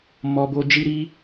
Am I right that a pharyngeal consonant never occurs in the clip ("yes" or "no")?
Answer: yes